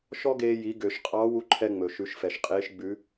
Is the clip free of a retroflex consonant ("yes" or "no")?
yes